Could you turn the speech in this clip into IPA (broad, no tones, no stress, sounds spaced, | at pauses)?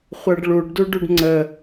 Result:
χʷ ɜ ɖ ɭ u ɖ d u ɖ u ɖ ŋ͡ǀ ə